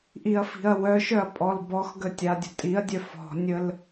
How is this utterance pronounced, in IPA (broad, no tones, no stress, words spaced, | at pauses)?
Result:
ʔiɐ̯fi̤ɐ̯wœʃœɐ̯ pʼɔlbɔxɡə tʲadʲə̤tʼiɐ̯dʲœ fɔ̤nʲəl